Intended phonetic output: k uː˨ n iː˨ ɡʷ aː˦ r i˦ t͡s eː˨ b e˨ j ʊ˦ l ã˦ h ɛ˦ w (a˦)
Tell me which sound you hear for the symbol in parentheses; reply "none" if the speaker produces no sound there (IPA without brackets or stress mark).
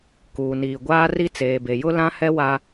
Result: a˦